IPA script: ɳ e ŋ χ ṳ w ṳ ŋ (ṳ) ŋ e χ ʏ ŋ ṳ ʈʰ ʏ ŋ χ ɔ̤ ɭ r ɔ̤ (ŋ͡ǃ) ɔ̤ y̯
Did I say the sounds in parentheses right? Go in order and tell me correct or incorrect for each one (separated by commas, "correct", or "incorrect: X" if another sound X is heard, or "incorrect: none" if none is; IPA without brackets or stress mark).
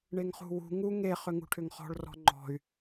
incorrect: u, correct